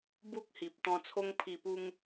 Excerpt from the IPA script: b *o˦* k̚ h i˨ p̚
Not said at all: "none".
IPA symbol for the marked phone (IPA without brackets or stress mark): u˦